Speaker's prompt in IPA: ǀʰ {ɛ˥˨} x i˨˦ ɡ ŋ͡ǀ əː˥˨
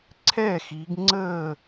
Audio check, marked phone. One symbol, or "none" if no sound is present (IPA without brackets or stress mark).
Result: ɛ˥˨